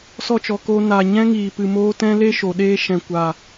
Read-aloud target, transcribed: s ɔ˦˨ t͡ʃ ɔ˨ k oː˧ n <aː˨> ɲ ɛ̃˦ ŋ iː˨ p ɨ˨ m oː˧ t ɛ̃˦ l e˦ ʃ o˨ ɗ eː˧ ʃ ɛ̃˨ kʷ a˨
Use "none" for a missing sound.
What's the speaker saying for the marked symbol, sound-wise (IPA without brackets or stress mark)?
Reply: aː˨